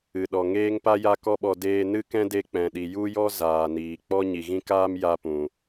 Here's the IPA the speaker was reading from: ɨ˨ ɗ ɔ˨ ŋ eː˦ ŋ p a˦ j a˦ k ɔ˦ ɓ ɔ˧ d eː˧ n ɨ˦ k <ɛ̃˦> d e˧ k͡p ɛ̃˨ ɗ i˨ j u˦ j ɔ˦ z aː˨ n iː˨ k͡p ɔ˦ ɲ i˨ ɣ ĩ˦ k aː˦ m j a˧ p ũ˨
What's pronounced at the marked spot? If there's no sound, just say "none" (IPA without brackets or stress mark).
ɛ̃˦